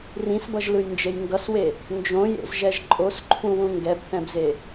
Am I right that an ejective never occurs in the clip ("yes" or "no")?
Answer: no